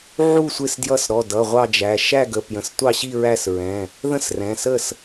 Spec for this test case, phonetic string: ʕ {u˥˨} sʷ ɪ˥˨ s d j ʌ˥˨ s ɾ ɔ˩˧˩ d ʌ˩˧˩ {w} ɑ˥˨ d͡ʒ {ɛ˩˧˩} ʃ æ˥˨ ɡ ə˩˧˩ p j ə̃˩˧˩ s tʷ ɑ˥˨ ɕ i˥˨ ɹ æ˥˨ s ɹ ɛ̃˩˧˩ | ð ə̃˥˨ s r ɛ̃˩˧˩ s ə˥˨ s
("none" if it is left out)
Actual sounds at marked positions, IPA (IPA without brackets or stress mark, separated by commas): u˥˨, ʁʷ, æ˩˧˩